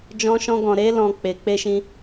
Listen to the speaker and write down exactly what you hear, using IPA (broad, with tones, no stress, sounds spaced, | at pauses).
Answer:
d͡ʒ ɔ̃˧ ʃ ɔ̃˧ ɡ ɔ̃˨ ɾ e˧ l ɔ̃˨ k͡p e˨ k͡p e˧ ʃ ĩ˧